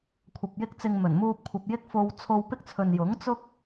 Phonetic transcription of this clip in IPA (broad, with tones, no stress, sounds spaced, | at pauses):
kʷʰ ɐ˨ p̚ j ɪ˥ k̚ t͡s ɪ˧ ŋ m ɵ˨˩ n m uː˧ p̚ kʷʰ ɐ˨ p̚ j ɪ˥ k̚ f o˧ w t͡sʰ o˧ w p ɪ˥ k̚ t͡sʰ ɵ˨ n j ʊ˨˥ ŋ t͡s ʊ˥ k̚